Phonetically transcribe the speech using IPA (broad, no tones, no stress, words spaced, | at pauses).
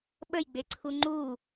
ɓəjɡ͡beǀʰu ŋ͡ǃu